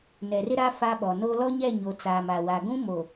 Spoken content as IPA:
n ɛ˨ r ɪ˦ ɾ a˦ f a˦ ɓ ɔ˨ n o˦ l ɔ˦ ɲ ɛ˦˨ ɲ o˨ t͡s aː˨ m a˨ w a˨ ɡ ũ˦ m o˨

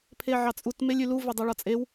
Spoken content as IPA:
pʰ e ʕ ɑ t͡sʼ u t m e lʲ y l u v e dˤ e ɭ ɒ t͡sʼ e w

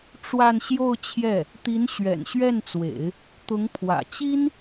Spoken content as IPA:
ʈ͡ʂ w a˥˧ n ɕ j o˥˧ ʊ̯ t͡ɕʰ j ɛ˥˩ | t̪ i˧˥ n ɕ ɥ ɛ̰˨˩ n ɕ ɥ ɛ˥˩ n t͡s w ḛ˨˩˦ ɪ̯ | t̪ ʊ˧˥ ŋ pʰ w ä̰˨˩ t͡ɕ i˥ n

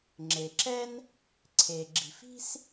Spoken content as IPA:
ŋ͡ǁ e˩ ǁ ɛ˥ n | ǀʰ e˩ ɡ͡ǁ i̤˩ f i̤˥ s

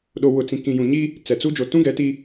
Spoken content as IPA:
ɗ o˨ w ʊ˨ t͡s ĩ˨ k ĩ˨ j ũ˨ ɲ i˦ | t͡s ɛ˨ t͡s u˦ d͡ʒ o˨ t ũ˦ ɡ ɛ˨˦ t i˦

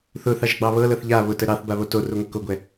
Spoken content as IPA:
θ ʊ θ ɑ ʒ ɡ͡b ɑ β ɤ l ɤ θ ʎ a β ʊ t ə ɾ ɑ θ b a β o t o r ʊ ŋʷ ə k o ɡʷ ɛ

